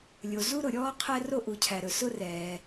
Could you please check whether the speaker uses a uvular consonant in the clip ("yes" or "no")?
yes